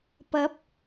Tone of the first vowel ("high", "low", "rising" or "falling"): rising